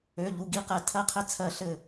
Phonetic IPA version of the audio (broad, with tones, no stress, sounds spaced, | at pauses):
ø˩˧˩ ʎ u˩˧˩ ɡ i˧˩ q ɛ˧˩˧ tʰ ɜ˦ qʰ ɘ˦ t͡sʰ ɜ˧˩˧ ɬ ɘ˧˩